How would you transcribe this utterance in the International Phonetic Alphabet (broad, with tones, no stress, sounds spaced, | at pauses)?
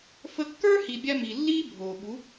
f ə˧ kː ə˞˦ h i˨ bʲ a˧ m i˨ lː iː˦ bʱ oː˨ ɓ u˨˦